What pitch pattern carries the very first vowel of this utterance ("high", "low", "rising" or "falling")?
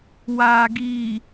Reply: low